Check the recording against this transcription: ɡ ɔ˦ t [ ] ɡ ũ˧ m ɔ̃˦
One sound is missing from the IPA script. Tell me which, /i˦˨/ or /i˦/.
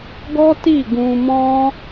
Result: i˦˨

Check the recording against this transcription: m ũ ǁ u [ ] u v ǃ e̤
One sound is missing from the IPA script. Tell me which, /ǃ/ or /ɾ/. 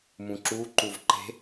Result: ǃ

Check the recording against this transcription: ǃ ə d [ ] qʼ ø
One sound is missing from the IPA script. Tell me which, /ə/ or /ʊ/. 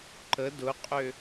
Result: ʊ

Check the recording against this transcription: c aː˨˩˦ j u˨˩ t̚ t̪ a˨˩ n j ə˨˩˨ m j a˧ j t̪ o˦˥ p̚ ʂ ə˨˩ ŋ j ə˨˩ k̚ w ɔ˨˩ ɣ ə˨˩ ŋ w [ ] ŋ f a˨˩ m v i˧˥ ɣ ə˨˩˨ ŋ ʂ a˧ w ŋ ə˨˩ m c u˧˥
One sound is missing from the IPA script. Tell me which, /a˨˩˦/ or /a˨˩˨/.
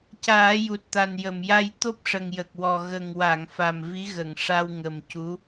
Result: a˨˩˨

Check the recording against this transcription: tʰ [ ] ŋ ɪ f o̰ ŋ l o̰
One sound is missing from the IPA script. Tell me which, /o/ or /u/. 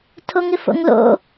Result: o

